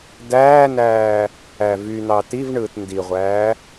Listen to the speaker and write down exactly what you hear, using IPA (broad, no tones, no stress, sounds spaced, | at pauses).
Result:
d æː n æː | æ v y n̪ ɑ t i v ɳ ɯː t n d i ʁʷ æː